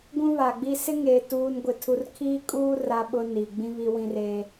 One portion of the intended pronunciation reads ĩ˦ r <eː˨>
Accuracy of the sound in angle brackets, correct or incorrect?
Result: incorrect: eː˦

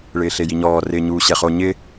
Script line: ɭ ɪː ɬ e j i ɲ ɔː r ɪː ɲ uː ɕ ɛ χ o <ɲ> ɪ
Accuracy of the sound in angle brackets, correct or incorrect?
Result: correct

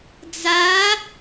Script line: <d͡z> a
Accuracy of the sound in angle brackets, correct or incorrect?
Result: correct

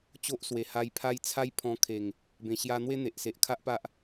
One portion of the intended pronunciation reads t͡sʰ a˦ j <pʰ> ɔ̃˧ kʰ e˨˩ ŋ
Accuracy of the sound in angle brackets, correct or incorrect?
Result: correct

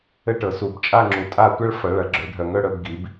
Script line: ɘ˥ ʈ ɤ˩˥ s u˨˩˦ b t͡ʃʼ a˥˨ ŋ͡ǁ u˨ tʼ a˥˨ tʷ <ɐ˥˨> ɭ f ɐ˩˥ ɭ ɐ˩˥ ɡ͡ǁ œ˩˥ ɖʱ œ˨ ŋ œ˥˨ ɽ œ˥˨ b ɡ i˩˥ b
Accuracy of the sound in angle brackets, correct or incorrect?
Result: incorrect: ɐ˥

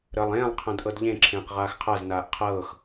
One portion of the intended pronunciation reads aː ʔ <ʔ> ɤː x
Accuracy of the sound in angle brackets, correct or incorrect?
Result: incorrect: qʰ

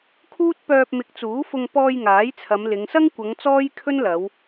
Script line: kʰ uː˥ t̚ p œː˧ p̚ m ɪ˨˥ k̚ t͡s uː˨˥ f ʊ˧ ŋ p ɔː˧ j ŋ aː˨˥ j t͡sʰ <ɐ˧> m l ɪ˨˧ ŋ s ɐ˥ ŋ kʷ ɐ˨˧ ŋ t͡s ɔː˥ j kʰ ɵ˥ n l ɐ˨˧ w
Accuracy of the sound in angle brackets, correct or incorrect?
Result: incorrect: ɐ˨˧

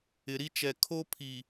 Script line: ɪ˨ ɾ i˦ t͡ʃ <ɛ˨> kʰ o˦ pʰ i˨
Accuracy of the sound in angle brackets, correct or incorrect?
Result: correct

